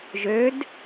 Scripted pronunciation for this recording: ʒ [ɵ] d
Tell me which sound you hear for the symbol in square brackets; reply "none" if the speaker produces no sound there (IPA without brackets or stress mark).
ø